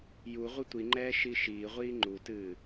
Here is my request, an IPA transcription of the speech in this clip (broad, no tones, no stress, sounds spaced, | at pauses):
j u ʁʷ ɨ tʷ i ŋ͡ǃ ɛː ʃ i ʃ iː ʁʷ iː ŋ͡ǃ u t ɨː